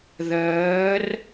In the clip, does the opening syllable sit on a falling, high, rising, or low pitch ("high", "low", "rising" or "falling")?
rising